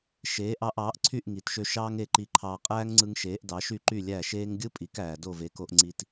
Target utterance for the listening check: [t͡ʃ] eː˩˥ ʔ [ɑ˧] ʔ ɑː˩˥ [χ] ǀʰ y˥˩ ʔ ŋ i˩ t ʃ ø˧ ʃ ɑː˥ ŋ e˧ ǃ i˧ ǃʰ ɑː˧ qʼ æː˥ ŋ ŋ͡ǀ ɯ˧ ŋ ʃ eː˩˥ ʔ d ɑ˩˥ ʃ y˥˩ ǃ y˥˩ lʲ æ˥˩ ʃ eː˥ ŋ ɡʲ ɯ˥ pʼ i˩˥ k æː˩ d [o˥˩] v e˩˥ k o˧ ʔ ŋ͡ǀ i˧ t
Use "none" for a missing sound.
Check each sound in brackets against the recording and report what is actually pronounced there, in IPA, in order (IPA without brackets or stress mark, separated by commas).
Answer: ʃ, ɑ˧, ʔ, o˥˩